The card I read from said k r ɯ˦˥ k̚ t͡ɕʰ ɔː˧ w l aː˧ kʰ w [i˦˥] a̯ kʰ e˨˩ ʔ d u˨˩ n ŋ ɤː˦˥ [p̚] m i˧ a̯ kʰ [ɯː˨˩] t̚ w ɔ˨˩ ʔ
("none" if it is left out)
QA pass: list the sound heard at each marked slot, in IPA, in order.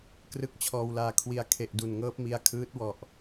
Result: i˧, p̚, ɯː˦˥

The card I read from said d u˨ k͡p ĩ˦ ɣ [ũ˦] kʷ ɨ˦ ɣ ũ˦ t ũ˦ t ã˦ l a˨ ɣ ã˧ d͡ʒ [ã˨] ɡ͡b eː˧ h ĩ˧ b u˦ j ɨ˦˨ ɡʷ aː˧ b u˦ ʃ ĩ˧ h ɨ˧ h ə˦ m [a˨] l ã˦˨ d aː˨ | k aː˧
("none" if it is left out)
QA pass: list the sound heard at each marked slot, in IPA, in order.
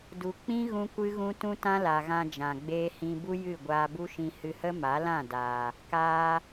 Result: ũ˦, ã˨, a˨˦

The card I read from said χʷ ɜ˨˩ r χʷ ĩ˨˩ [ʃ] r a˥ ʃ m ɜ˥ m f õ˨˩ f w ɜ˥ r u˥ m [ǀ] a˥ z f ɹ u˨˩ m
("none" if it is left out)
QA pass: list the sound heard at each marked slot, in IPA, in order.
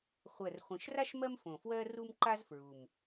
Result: ʃ, ǃ

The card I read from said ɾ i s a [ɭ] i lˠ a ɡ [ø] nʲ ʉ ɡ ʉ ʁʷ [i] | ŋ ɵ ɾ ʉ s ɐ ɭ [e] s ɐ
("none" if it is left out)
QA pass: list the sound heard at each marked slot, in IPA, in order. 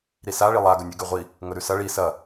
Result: ɭ, ɵ, i, i

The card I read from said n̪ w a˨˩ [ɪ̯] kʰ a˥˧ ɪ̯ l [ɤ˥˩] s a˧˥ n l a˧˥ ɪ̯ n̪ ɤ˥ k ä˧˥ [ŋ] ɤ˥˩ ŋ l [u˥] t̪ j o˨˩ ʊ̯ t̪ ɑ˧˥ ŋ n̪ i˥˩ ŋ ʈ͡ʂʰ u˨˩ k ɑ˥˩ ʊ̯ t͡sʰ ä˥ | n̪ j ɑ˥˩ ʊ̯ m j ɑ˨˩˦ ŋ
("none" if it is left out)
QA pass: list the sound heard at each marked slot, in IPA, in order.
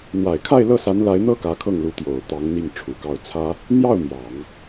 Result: ɪ̯, ɤ˥˩, kʰ, u˧˥

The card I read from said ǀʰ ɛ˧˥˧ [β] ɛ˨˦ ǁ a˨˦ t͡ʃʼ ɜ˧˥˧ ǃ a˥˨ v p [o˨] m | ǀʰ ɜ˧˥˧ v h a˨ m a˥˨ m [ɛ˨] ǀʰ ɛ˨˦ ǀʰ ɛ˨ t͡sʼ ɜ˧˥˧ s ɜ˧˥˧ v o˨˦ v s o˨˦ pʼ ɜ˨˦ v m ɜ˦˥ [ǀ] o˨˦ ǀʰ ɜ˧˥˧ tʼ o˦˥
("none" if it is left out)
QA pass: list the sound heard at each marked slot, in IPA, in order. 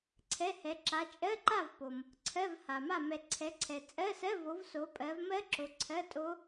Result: h, o˨, ɛ˨, ǁ

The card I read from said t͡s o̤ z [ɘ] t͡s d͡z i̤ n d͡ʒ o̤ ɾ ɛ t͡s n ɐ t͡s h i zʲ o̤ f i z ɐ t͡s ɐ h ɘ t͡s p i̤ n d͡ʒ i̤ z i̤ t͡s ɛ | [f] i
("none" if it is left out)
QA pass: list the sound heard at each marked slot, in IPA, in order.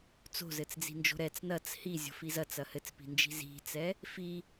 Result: ɘ, f

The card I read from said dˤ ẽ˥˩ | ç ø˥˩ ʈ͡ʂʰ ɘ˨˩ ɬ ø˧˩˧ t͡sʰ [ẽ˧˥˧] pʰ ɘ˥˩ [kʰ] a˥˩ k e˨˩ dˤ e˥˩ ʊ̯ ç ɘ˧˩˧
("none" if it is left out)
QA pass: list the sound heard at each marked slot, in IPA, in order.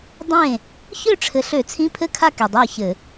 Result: ĩ˧˥˧, kʰ

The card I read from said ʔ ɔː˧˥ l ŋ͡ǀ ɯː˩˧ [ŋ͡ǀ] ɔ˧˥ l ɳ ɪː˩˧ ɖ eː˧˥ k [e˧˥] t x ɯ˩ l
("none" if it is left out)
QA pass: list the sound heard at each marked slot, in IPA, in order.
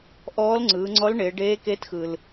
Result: ŋ͡ǀ, e˧˥

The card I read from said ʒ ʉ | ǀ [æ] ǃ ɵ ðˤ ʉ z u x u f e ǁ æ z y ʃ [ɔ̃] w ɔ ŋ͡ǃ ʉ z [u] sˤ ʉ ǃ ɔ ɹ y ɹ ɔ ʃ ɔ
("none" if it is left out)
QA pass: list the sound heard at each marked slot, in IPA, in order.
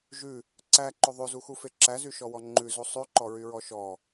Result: æ, ɔ, u

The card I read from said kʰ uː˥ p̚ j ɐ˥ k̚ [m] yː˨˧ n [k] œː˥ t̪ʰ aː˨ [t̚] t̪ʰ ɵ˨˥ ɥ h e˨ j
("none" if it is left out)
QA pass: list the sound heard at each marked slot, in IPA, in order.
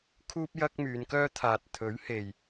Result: m, k, t̚

